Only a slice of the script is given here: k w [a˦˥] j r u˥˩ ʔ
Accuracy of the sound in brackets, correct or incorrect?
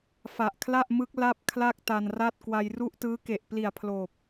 incorrect